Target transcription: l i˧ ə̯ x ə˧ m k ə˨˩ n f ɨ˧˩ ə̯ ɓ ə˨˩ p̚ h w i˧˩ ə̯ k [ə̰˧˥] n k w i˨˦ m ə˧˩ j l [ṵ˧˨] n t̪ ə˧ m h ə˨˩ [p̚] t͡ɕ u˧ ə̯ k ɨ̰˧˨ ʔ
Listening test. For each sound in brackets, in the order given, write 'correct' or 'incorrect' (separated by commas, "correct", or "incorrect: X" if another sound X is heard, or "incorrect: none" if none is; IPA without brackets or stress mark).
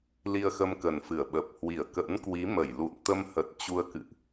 correct, correct, incorrect: t̚